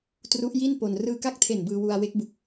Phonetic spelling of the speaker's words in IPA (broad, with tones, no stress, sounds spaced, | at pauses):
t r u˦˥ ʔ j i˥˩ n p o˧ n r ɯː˧ k a˥˩ k̚ tʰ e˨˩ n b ɯː˧ w u˧ a̯ w e˦˥ k̚ b u˨˩ k̚